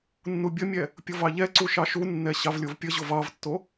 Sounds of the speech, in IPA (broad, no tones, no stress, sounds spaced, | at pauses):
nː u bʲ ə mʲ ɛ | pʲ o v ɑ ʎ ɛ ǀ u ʃ ɑ ʃ u nː ɛ ɕ ɑ v lʲ o v pʲ ə ʑ o v ɑ v tː o